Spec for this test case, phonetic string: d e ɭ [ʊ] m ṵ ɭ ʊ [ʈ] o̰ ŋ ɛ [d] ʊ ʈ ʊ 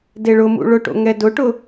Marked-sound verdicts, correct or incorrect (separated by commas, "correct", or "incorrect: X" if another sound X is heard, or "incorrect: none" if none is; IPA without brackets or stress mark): correct, correct, correct